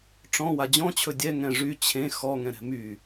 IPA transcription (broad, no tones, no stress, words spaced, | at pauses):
ʈ͡ʂɔ̃ wad͡ʑɔ̃t͡ɕʰɵ dʲɛ ŋɛ̃ʐy t͡ɕʰẽ xɔŋɛ̃ ɾɛ̤my